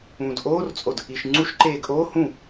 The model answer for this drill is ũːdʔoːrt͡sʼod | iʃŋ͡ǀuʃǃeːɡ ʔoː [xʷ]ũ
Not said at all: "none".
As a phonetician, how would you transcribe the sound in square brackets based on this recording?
h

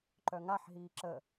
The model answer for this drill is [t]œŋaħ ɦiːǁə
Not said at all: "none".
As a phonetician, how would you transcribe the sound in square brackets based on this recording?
ǃ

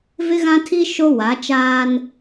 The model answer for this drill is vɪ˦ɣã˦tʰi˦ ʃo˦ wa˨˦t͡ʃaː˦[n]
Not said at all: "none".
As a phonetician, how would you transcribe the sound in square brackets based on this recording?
n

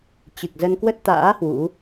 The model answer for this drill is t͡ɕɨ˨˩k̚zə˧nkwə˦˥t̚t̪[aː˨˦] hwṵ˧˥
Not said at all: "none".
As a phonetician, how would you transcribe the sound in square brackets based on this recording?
a̰ː˧˥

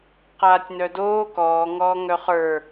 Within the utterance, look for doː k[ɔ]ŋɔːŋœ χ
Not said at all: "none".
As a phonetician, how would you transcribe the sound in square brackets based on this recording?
ɔː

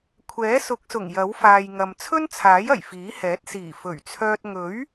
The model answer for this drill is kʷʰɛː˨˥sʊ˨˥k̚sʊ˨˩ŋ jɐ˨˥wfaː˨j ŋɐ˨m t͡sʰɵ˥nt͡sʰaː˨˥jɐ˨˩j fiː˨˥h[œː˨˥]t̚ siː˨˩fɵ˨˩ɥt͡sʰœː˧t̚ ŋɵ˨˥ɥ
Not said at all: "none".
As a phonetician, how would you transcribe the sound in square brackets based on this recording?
ɛː˨˥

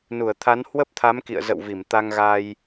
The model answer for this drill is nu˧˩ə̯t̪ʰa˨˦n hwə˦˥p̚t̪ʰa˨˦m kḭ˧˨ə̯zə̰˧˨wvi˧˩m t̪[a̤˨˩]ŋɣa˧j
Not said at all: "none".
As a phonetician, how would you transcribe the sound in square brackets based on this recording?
a˧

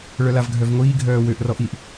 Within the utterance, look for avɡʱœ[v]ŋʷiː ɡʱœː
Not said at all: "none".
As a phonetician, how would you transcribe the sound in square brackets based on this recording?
v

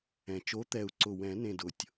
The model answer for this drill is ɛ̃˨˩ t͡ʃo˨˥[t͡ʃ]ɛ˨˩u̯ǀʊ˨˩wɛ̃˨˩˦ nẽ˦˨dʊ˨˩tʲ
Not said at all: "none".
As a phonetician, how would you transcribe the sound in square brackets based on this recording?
t̪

